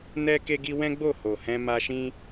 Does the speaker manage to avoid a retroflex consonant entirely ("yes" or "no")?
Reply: yes